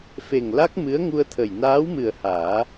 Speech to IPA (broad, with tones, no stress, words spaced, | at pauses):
fe˨˩ŋla˦˥k̚ mɨ˧˥ə̯ŋu˧ə̯t̪ʰə˨˩j naː˧˥wmɨ˨˩ə̯ haː˨˩˦